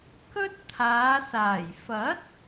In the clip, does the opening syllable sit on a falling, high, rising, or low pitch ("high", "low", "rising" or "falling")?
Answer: high